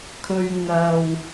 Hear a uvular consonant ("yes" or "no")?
no